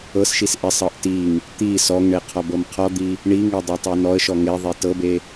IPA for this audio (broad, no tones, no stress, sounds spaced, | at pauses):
ɤ s ʃ i s ʔ e sˤ ɤ ʔ t i ŋ | t̪ i s ɔ ŋ ɳ e qʰ ɔ b ɤ m qʰ ɔ d̪ i | ɳ i ŋ e dˤ e tˤ e n ɔ ə̯ ʃ ɔ ŋ e ðˤ e t ɤ b e